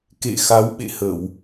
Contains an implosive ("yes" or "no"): yes